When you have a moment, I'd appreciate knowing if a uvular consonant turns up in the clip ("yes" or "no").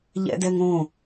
no